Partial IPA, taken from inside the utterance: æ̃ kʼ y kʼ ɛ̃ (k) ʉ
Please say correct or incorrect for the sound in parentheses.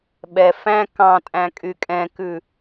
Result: correct